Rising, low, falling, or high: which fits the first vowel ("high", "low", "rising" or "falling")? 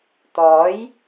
rising